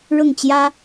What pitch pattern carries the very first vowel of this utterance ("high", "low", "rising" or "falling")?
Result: falling